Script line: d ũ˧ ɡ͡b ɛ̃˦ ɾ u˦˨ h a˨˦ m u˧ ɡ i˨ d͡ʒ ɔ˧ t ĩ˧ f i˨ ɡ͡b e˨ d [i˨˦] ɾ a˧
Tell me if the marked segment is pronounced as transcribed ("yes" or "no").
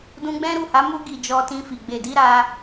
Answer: yes